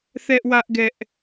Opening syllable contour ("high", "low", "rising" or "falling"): high